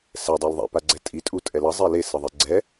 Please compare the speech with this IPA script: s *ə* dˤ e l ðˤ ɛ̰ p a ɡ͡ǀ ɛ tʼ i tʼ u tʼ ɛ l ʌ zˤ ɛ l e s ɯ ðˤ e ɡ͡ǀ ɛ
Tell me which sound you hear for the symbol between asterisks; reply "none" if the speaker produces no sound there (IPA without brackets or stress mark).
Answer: ɛ